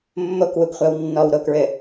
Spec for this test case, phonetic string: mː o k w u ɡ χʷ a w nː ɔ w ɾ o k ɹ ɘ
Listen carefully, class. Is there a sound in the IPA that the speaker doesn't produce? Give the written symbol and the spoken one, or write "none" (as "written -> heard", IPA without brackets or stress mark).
none